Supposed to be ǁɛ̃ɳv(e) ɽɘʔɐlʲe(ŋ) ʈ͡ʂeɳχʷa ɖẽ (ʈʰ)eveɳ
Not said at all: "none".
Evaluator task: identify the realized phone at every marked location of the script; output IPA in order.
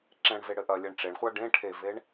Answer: e, ɳ, ʈʰ

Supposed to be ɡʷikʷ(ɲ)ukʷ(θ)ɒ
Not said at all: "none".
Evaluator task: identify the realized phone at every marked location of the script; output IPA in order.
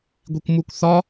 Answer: m, θ

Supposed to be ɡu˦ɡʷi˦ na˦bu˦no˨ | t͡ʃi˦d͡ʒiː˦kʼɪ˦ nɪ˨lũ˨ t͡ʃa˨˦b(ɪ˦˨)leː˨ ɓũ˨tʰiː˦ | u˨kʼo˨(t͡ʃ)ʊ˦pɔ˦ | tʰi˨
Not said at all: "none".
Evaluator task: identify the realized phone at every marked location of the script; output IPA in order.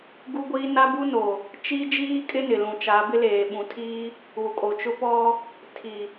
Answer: ɪ˦, t͡ʃ

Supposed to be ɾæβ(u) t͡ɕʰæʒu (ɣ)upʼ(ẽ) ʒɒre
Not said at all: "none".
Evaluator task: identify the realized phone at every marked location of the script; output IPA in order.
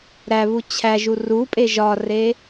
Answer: u, r, e

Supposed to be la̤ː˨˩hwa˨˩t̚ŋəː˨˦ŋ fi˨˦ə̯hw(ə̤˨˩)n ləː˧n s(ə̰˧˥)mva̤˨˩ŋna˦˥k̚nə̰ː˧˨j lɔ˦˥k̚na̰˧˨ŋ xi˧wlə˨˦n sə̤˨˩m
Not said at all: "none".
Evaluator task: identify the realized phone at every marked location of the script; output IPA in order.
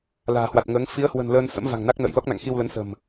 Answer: ə̤˨˩, ə̰˧˥

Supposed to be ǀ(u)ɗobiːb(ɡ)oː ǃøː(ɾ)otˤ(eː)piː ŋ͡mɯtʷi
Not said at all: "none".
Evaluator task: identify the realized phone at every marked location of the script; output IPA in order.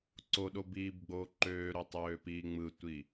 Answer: o, ɡ͡b, ɾ, øː

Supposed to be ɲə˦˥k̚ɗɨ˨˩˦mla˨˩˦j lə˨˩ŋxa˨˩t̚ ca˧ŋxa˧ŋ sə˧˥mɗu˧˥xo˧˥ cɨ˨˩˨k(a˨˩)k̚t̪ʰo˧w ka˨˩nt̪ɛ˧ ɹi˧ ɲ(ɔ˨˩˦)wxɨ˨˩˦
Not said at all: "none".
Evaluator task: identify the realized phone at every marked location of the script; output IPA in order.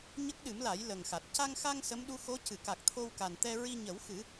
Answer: a˨˩, ə˨˩˦

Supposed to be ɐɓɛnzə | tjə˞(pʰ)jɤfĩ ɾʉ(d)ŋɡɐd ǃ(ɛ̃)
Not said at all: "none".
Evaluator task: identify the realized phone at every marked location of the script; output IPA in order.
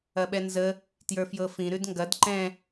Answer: f, d, ɛ̃

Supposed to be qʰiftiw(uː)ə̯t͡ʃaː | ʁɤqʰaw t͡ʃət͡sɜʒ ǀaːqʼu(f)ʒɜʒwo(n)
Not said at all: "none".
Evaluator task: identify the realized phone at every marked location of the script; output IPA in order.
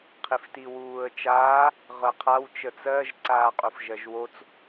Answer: uː, f, t͡s

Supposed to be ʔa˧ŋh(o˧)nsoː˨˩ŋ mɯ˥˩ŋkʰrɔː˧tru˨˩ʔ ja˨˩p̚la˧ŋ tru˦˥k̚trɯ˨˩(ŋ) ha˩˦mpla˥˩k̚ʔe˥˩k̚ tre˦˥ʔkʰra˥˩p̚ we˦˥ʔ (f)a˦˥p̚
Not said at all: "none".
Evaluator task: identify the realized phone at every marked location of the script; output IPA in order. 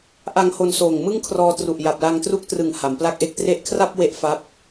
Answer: o˧, ŋ, f

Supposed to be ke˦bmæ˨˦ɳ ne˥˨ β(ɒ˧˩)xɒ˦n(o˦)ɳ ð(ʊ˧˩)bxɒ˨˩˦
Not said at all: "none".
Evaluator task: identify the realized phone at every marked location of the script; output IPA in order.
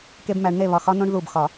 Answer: ɒ˧˩, õ˦, u˧˩

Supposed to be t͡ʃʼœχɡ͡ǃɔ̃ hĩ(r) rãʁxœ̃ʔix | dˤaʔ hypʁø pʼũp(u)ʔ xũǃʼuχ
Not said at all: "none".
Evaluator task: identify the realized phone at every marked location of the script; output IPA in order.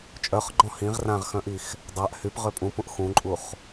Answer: ʁ, ũ

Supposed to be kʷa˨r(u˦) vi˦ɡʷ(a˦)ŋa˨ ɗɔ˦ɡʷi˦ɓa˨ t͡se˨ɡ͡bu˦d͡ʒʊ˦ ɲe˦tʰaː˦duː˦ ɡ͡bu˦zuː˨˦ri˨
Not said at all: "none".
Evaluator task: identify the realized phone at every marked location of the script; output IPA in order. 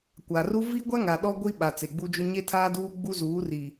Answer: u˦, a˦

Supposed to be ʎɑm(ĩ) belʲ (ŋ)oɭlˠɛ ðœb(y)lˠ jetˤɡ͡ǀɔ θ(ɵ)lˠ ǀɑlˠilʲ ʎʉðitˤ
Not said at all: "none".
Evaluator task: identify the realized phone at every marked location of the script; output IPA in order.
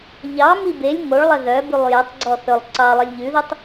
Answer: i, ŋ, y, ɵ

